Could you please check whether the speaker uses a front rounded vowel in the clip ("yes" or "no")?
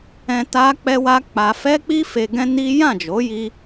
no